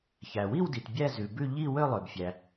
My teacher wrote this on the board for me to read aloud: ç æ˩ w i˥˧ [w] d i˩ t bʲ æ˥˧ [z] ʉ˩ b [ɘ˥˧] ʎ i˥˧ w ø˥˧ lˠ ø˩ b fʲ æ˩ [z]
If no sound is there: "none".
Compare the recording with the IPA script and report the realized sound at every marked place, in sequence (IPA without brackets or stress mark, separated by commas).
w, z, ʉ˥˧, none